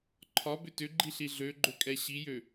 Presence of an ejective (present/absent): present